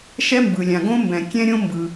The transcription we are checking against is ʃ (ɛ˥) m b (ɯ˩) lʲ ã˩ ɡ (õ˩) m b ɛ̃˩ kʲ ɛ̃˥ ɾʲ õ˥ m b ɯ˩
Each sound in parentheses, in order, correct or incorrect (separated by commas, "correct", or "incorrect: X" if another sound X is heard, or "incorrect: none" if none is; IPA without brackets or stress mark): correct, correct, incorrect: õ˥